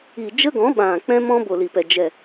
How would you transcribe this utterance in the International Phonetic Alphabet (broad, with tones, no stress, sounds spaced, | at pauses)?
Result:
i˨ d͡ʒ ə˦ ɡ ɔ̃˨˦ ɓ ã˨ k͡p ɛ̃˦ m ɔ̃˦ b o˨ l i˨ p ɛ˨ d͡ʒ ɛ˨